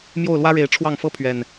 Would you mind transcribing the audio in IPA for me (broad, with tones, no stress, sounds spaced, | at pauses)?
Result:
m j o˥˨ ʊ̯ l w ä˦ ɻ e˨˦ ɪ̯ ʈ͡ʂʰ w ɑ˥˨ ŋ f ɤ˦ pʰ ɥ ɛ˨˩ n